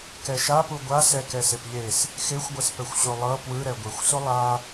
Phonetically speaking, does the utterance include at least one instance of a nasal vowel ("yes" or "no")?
no